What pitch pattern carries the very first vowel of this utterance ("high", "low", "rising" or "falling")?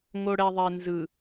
low